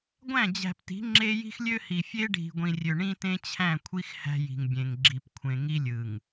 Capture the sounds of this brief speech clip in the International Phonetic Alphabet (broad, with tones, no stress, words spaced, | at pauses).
ɡʷæ̃˦˨d͡ʑæ̤˨pti̤˨˦ ŋ͡ǁe˦ji̤˦xlʲø˦hi˨ fʲe˦ɖʱi̤˨ɡʷĩ˨rʲø˨ ɳĩ˦tẽ˦t͡ɕʰæ̃˦˨kʷʰi˦x hæ̤˦ji̤˨ŋbʲẽ˨ŋ ɡ͡ǁi˨p kʷʰẽ˨ŋi˦ lʲɯ˨ŋ